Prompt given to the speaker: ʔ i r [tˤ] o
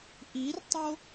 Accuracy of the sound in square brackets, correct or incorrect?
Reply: correct